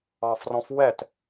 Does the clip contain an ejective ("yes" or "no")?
no